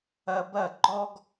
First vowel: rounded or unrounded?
unrounded